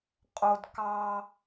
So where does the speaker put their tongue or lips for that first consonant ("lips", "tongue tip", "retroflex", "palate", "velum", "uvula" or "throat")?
uvula